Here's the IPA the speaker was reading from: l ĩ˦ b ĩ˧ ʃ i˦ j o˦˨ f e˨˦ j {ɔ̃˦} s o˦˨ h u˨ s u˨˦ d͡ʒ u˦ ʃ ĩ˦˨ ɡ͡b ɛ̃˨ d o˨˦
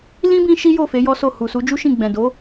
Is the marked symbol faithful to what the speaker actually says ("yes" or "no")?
no